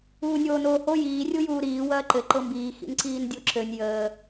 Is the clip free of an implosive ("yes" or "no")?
yes